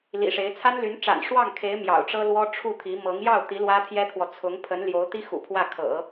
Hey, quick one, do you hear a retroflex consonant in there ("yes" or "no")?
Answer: yes